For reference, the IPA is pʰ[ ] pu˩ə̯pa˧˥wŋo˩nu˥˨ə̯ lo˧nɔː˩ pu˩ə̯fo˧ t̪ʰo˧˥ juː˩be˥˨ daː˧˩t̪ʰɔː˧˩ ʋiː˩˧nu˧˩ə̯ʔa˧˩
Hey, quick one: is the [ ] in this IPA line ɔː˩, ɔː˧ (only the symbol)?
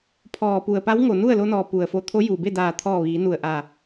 ɔː˩